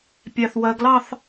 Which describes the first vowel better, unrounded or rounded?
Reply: unrounded